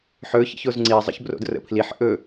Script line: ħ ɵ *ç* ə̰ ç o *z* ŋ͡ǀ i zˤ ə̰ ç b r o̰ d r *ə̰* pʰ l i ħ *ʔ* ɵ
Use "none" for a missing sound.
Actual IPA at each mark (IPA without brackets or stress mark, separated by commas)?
ç, z, ə̰, ʔ